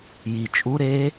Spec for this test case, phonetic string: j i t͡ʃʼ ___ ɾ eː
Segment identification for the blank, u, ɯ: u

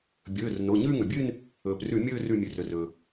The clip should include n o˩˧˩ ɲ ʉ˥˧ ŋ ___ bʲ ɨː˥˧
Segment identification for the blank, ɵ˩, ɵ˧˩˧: ɵ˩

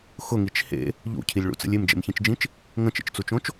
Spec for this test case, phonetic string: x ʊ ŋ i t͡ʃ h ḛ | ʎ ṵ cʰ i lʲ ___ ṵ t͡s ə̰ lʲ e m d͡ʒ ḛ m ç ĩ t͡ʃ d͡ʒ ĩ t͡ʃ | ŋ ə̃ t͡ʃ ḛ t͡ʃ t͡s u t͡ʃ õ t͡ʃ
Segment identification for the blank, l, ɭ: ɭ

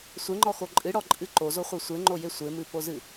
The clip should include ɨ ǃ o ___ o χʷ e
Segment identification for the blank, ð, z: z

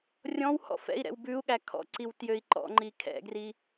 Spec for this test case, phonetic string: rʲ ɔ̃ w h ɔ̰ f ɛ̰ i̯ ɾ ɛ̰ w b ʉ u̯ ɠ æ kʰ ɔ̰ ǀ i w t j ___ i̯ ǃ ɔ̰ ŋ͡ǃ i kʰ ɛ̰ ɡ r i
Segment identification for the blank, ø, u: ø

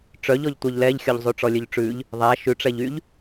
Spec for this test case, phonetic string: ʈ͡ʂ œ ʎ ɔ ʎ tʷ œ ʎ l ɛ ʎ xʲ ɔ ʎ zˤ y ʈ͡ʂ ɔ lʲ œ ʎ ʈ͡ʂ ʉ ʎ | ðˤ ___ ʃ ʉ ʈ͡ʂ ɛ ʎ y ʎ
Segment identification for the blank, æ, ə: æ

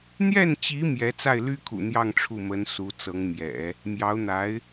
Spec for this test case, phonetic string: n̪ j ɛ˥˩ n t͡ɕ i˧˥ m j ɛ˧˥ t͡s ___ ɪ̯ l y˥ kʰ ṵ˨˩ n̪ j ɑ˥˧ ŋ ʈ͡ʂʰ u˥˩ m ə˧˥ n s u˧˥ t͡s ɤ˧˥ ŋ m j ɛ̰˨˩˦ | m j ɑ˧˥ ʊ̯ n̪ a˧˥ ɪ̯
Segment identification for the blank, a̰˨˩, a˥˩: a˥˩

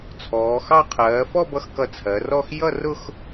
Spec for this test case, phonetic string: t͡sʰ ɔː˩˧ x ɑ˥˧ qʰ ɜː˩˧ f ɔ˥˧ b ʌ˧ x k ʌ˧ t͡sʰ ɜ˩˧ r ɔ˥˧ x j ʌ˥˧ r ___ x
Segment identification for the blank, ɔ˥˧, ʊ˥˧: ʊ˥˧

